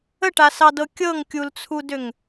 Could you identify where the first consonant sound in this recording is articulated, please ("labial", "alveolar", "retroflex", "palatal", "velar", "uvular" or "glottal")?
retroflex